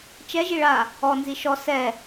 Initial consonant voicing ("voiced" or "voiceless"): voiceless